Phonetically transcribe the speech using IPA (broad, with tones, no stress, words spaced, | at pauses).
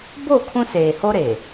bo˦˨ kʰũ˦seː˨ho˦ ɾe˨